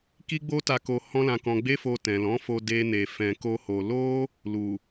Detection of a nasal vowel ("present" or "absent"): present